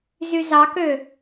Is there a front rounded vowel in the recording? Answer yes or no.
yes